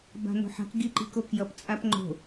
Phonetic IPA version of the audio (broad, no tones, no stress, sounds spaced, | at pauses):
b a̤ n o̤ ħ a̤ k ɡ i ǃ i̤ k o k j ʌ p t͡sʼ a p ŋ͡ǃ o̤